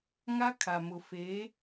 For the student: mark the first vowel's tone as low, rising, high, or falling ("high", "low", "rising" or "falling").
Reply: high